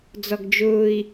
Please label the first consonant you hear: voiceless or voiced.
voiced